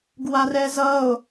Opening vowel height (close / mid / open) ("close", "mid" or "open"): open